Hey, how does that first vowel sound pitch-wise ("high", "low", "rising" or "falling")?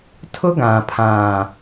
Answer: high